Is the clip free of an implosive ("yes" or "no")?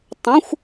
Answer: yes